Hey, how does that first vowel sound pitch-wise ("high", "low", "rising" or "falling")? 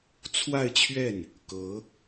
falling